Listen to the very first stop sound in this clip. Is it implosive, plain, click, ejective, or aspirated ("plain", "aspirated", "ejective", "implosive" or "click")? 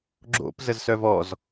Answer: click